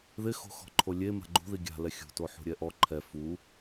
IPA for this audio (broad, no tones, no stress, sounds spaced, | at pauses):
ð ɪ x o̤ x ɔ̤ ǃʰ o lʲ e m a̤ ɡ͡ǃ ṳ ð i ɡʲ a̤ l ɛ xʲ ṳ t o ħ ṳ ɾʲ ɛ ʔ ɔ ǃʰ ɛ f u